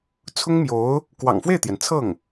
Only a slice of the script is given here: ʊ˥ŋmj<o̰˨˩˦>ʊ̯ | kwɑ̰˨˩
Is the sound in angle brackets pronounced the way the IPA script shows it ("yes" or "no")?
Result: no